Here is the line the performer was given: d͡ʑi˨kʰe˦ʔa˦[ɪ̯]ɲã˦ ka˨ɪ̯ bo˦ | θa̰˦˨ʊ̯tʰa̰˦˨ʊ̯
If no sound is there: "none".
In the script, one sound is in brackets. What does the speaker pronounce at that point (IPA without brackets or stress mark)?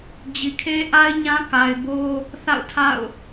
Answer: ɪ̯